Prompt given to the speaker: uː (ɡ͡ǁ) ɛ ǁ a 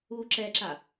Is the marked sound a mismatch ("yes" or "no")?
yes